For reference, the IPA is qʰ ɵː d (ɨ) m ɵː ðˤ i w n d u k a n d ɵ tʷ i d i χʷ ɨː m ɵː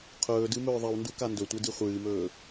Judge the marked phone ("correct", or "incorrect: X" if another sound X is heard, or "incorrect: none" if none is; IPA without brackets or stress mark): correct